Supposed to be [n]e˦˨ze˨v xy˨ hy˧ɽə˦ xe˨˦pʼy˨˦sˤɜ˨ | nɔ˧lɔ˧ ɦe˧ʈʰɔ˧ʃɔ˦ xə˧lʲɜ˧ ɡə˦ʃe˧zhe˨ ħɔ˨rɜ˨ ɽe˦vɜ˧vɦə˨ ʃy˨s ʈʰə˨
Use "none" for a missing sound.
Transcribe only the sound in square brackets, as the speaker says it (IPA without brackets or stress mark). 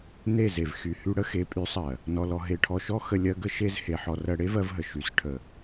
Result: n